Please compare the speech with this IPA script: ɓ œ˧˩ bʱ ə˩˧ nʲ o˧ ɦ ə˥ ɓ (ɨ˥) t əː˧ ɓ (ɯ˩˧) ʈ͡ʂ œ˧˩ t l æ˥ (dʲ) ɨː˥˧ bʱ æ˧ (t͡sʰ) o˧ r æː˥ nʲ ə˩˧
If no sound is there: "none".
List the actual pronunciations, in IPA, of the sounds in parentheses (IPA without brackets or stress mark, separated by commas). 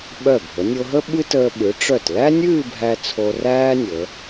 ɨ˥, ɯ˩˧, nʲ, t͡sʰ